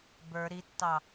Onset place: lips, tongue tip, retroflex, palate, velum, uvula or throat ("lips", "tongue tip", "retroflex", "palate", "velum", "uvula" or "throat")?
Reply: lips